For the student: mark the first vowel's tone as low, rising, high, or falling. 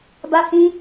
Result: high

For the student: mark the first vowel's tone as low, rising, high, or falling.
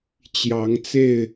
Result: rising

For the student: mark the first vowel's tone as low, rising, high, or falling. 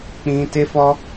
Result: high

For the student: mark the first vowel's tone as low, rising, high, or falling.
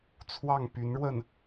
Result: falling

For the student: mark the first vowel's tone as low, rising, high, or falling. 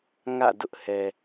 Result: falling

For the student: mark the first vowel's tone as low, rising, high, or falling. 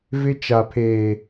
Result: high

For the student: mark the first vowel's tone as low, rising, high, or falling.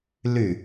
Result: falling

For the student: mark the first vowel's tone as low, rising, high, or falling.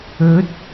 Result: rising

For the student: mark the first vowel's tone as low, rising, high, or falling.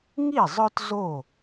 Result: falling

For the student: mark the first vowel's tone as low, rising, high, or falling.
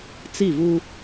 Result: falling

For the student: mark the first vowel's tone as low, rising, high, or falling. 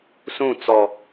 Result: falling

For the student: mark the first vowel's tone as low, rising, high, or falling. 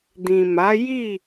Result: low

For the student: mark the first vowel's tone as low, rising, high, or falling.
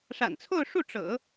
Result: low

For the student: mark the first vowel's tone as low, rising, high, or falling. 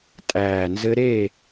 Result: low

